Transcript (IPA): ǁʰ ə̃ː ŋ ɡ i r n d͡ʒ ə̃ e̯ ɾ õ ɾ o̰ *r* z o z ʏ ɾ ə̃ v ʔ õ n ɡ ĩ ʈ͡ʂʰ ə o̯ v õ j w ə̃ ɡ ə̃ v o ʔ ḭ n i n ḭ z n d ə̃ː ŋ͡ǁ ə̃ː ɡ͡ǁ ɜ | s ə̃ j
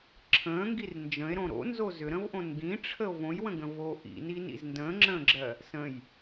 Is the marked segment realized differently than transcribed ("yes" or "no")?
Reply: yes